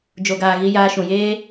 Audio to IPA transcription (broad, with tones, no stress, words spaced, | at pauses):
d͡ʒo˨ɡaː˨ ɣi˧ jaː˧ʃũ˨jeː˦